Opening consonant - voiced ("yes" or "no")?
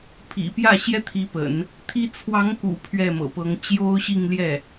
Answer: no